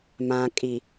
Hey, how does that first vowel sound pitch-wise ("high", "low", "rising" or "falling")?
low